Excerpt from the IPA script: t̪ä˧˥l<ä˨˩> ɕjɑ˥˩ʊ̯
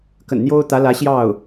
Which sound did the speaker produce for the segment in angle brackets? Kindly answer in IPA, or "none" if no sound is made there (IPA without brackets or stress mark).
ä˧˥